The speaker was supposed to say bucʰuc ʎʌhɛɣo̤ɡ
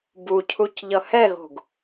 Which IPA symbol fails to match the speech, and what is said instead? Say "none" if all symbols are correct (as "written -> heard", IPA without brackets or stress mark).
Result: none